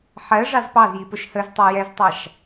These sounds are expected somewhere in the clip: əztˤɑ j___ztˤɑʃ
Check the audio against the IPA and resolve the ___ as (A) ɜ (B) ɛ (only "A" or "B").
B